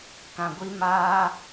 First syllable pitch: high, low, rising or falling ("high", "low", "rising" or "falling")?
low